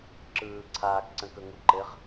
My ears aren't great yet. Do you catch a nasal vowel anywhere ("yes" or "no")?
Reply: yes